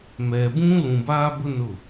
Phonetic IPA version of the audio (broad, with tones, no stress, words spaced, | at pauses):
mɛ˨bũ˦ lũ˨baː˦bʊ˦ nʊ˦˨